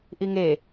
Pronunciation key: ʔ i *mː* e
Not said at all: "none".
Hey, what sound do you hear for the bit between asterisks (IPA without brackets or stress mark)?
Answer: ŋ